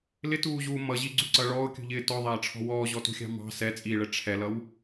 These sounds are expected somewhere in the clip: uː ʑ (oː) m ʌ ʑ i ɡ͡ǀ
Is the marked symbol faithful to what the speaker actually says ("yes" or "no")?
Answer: no